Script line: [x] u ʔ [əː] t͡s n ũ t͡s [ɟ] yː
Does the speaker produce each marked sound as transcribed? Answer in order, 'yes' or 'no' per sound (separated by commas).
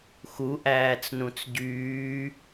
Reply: yes, no, yes